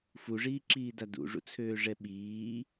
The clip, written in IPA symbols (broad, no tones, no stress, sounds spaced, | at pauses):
f u ʐ iː ǁ iː d a d ṵ ʐ ṵ t͡sʰ øː ʐ ɛ ɓ iː